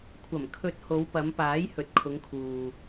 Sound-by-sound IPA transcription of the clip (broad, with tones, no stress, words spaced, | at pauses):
kʷʰɐ˨˩mkʰɵ˨˥t̚ ho˨˧wpɐ˨˧m paː˨˥jhɵ˨t̚ kʰʊ˨˧ŋkʰuː˨